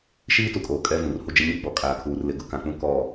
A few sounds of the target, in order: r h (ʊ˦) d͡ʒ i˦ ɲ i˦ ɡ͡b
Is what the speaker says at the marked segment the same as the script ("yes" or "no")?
no